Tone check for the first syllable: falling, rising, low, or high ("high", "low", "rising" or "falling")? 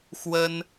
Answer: high